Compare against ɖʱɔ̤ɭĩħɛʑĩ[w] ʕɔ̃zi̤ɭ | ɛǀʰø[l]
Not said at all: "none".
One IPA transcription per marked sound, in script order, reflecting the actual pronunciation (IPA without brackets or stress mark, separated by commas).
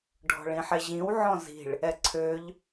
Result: w, ʎ